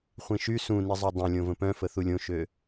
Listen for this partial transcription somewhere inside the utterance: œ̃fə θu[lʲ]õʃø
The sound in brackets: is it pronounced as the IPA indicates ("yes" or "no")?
yes